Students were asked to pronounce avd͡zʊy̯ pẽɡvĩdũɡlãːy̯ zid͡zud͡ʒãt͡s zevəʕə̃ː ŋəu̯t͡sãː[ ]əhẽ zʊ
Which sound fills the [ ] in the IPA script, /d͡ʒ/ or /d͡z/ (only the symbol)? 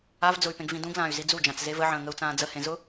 d͡z